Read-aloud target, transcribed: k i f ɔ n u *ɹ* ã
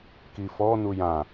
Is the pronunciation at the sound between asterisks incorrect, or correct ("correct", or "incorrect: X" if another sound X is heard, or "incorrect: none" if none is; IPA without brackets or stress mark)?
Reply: incorrect: j